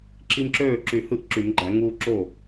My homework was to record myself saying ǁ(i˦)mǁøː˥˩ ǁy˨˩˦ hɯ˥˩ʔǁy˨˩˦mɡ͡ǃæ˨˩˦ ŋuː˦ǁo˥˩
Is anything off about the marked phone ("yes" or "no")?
no